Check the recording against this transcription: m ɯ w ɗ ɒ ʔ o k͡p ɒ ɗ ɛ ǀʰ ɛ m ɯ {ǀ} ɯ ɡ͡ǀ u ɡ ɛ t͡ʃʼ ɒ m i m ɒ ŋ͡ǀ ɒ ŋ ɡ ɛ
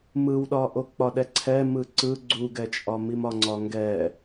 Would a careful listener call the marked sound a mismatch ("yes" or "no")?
no